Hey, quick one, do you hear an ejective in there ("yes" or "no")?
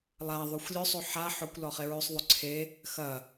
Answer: no